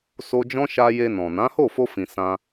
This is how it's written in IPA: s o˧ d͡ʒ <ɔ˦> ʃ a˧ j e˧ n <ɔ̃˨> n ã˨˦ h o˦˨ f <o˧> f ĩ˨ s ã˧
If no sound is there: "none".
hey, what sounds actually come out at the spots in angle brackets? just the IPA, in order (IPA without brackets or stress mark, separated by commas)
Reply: ɔ̃˦, ɔ̃˨, o˧